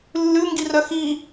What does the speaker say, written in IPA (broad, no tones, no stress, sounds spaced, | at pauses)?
lː ʉ ŋ ɡ i r œ x i